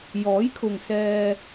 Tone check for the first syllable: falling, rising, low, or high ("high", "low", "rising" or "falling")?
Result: rising